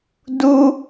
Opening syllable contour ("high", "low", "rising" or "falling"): high